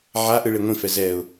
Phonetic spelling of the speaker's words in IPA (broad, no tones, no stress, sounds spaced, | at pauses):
ʕ a ʔ ɯ ɭ e ŋʷ ĩ f ɛ z ɛ ʊ̯